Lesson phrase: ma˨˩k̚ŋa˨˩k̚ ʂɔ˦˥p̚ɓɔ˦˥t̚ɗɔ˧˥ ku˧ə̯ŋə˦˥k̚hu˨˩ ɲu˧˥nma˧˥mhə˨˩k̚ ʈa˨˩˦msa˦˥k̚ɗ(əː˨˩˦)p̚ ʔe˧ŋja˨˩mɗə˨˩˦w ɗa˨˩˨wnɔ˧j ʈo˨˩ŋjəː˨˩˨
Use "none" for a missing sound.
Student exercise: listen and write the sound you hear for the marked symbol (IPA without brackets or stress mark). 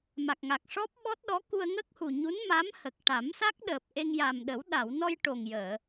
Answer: əː˨˩